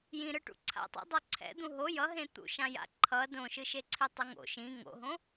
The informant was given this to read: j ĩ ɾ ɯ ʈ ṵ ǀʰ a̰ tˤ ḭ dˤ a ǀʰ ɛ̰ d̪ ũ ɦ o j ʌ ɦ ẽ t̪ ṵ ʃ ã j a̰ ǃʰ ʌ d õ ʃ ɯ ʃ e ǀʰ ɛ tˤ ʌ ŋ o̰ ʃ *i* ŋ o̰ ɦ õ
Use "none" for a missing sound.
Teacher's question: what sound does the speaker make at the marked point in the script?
ĩ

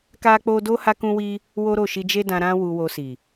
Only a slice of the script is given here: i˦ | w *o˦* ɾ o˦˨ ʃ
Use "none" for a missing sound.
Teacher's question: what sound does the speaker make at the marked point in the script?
o˦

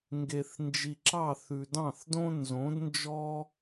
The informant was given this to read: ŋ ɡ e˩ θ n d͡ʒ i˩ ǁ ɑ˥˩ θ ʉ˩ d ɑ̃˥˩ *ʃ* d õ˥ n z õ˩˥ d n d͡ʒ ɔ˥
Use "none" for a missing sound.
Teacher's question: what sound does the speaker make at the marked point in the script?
θ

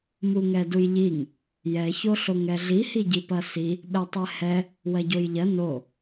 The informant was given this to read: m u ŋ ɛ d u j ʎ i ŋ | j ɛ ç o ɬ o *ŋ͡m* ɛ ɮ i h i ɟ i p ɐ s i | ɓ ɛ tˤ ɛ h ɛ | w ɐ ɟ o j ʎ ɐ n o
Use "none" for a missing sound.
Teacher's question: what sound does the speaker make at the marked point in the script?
ŋ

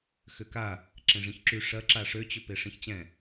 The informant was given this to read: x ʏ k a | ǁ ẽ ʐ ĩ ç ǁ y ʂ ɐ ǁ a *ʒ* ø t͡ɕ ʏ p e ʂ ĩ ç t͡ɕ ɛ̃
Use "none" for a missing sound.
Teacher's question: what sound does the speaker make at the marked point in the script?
ʂ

